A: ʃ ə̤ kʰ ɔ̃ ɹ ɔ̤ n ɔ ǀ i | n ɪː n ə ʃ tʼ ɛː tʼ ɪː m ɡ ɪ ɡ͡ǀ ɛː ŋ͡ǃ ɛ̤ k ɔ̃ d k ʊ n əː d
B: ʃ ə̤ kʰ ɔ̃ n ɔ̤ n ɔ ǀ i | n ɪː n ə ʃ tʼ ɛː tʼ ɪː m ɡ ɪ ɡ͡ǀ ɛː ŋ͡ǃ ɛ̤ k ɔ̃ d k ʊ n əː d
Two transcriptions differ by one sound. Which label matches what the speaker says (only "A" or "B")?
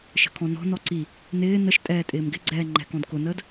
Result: B